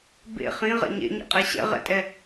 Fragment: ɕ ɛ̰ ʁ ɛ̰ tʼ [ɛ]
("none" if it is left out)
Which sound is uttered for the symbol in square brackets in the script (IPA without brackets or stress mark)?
ɛ